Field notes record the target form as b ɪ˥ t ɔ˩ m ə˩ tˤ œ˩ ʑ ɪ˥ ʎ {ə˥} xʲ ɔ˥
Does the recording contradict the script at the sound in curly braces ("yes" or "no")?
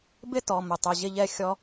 yes